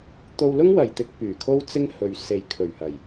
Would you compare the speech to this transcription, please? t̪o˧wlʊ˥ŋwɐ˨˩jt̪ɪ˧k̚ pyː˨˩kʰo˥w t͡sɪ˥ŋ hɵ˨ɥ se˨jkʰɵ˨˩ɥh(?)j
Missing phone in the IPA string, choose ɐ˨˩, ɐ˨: ɐ˨˩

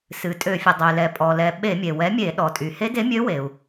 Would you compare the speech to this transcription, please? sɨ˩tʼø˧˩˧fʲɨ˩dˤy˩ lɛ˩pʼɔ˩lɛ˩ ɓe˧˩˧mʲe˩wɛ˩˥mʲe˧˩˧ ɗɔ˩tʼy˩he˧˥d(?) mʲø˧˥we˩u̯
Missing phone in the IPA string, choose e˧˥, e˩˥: e˧˥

